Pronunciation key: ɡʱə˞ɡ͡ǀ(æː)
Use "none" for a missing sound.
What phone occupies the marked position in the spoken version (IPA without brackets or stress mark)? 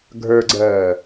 ɜː